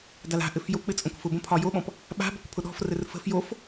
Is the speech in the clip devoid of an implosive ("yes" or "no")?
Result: no